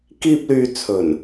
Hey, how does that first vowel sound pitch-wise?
high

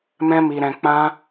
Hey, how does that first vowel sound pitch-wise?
high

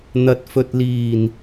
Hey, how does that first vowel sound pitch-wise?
low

